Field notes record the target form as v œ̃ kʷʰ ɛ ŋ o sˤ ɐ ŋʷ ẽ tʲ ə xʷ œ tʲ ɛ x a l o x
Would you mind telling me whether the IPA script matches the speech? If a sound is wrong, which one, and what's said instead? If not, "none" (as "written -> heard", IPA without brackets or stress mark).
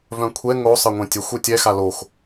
none